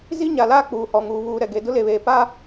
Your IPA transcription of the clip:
z i˦ ɲ a˨ l aː˦ k͡p uː˨ h ɔ˨ ŋ uː˨ β uː˨ ɾ ɛ˨ ɡ e˨ d ʊ˦ l e˨ β eː˨ p a˦

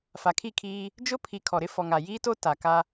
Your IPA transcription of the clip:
f a˨ kʰ i˦˨ kʰ iː˦ | d͡ʒ ʊ˦ pʰ i˨ kʰ ɔ˨ ɾ ɪ˦ f ɔ˨ ŋ a˨ j iː˦ t o˦ t a˨ k a˦

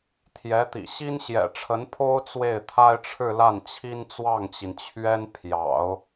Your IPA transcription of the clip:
t̪ʰ j ɛ˧˥ t̪ ḭ˨˩ ɕ i˥ n ɕ j ɛ̰˨˩ ʈ͡ʂʰ ə˧˥ n pʰ o˥ ʊ̯ t͡s w e˥˩ ɪ̯ t̪ʰ a˥ ɪ̯ ʈ͡ʂʰ ɻ̩˥˧ l a˥˩ n t͡ɕʰ i˥ n t͡s w ɑ˥˩ ŋ t͡ɕ i˩ n t͡ɕʰ ɥ ɛ˥ n pʰ j ɑ̰˨˩˦ ʊ̯

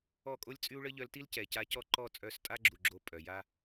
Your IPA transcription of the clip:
ɔ˦˨ kʼ o˦ lʲ t͡sʼ y˦ u̯ ɭ ə˦ ʎ œ˧ l t i˦ l c ɛ˨ c a˧ c ɔ˦˨ ǃ ɔ˦˨ t͡sʼ œ˦˨ s tʼ a˦ ɡ͡ǁ u˨ ɡ͡ǁ o˧ pʼ œ˨ j a˦

